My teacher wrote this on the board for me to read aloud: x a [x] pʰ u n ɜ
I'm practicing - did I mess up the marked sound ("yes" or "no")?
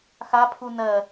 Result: yes